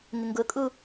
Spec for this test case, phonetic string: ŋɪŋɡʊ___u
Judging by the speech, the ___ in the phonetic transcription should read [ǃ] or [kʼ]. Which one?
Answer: kʼ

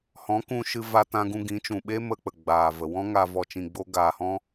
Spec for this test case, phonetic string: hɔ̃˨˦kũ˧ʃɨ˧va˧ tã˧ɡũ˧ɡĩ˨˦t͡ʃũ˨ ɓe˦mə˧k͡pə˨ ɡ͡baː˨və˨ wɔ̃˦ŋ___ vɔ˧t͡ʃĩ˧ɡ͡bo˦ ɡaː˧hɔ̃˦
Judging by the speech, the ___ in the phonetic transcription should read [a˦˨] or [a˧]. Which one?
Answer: a˧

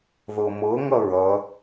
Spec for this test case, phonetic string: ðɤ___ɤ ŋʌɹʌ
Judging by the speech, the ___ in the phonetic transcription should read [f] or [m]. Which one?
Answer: m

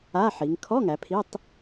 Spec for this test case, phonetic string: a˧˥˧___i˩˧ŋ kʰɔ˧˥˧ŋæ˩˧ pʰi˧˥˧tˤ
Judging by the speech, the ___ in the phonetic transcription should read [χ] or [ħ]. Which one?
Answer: ħ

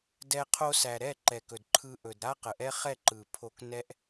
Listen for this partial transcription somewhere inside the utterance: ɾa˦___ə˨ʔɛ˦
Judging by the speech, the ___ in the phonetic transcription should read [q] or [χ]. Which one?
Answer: q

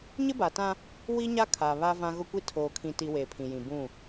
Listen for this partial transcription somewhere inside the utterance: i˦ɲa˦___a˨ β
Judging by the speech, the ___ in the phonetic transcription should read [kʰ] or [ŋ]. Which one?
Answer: kʰ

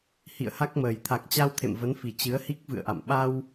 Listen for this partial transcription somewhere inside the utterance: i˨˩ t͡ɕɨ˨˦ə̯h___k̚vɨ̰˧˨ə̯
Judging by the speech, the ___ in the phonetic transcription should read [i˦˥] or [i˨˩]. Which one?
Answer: i˦˥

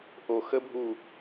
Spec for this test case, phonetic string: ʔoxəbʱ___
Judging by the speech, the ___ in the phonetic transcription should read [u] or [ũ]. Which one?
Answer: u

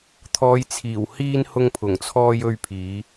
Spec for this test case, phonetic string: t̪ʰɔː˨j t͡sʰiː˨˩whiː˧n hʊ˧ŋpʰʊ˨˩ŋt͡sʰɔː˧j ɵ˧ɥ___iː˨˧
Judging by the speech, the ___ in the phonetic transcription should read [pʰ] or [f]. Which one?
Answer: pʰ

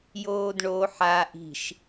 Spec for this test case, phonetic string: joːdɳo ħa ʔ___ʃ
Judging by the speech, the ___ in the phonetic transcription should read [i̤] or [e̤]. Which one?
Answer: i̤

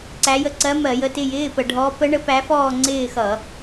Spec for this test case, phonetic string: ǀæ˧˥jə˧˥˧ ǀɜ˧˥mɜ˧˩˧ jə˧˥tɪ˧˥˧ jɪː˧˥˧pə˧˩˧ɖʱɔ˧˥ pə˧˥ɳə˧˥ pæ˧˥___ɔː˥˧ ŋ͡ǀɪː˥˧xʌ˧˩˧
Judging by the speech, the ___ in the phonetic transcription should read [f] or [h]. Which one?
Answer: f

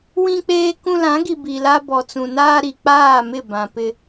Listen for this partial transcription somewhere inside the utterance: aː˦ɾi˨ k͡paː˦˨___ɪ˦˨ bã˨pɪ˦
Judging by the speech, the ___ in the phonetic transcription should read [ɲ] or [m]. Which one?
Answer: m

